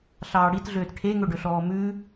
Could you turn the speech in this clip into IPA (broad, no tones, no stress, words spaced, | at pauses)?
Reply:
ɬɑːɽitɮøːt ʈʰeŋɵɖɵɬɔː mʉ